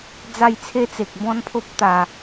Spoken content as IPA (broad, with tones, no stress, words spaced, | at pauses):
d͡za˥˧jt͡sʰe˦t͡se˨k̚ bɔ̃˦npʰo˦p̚t̪a˨˩